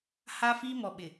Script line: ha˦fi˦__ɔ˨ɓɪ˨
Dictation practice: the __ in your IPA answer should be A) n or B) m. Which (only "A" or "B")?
B